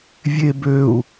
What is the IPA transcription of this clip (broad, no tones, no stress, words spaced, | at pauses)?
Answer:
vʲebøu̯